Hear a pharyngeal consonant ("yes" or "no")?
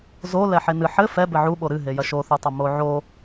yes